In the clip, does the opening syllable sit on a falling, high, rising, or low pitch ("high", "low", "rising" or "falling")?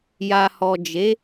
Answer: low